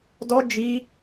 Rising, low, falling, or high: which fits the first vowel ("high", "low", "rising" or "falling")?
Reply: high